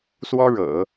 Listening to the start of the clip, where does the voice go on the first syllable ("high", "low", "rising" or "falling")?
high